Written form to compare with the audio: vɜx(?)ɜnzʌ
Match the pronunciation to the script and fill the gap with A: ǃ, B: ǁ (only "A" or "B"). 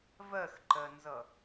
A